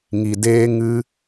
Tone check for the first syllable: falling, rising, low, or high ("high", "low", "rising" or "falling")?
low